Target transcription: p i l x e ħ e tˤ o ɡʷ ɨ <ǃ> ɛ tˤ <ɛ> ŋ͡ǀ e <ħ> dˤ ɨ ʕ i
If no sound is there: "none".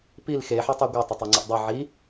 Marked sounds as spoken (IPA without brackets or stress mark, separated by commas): tˤ, ɛ, ʔ